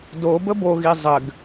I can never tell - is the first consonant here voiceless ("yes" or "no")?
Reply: no